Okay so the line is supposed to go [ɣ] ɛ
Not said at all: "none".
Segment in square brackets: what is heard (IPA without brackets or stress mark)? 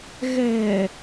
ɣ